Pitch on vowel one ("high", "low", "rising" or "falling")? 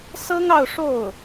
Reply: high